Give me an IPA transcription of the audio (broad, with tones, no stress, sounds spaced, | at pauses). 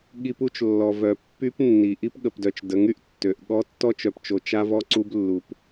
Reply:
ɠ i˦ p u˦ t͡ʃ lː ɔ˨ v œ˨ pː y˦ p nː i˨ ʔ i˦ p ɠ ə˨ p d œ˨ t͡ʃ d ə˨˦ ŋ y˨ ʔ tː ø˨ ʔ ɠ ɔ˦ tː ɔ˦ t͡ʃ œ˨ p t͡ʃ o˨ t͡ʃ a˦ v ɔ˦ ǀ u˦ b lː u˨ p